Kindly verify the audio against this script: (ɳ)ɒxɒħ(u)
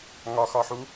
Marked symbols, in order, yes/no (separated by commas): no, yes